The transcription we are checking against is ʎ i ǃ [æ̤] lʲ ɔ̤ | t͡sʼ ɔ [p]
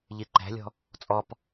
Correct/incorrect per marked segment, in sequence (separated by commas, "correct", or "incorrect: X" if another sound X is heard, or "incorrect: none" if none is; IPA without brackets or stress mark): correct, correct